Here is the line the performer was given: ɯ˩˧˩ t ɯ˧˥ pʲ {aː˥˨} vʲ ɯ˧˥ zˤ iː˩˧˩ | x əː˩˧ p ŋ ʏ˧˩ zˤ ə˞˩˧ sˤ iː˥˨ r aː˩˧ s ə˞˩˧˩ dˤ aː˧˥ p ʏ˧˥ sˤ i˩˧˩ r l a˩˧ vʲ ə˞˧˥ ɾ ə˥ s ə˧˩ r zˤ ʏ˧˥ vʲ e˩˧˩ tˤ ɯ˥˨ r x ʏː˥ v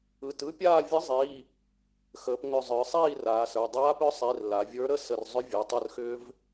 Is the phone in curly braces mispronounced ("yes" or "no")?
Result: no